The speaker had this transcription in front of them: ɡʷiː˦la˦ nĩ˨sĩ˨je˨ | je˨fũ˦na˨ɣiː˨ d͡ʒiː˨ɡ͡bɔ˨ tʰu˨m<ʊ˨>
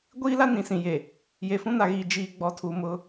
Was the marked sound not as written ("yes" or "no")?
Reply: yes